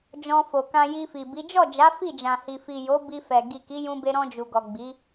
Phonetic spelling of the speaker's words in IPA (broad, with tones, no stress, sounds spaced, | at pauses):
d͡ʒ ɔ̃˧ f o˨ k ã˧ j i˧ f i˨ b i˨˦ d͡ʒ ɔ˦˨ d͡ʒ a˨˦ f i˦˨ d͡ʒ ã˨ h i˨ f i˨ j o˨˦ b i˧ f ɛ˨ ɡ i˨ k i˨˦ j ũ˧ b e˧ ɾ ɔ̃˧ d͡ʒ u˨ ɡ ɔ˨ ɡ͡b i˨˦